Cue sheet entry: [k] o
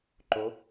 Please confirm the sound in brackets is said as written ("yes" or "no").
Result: no